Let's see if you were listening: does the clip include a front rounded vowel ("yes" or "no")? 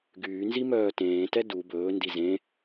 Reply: yes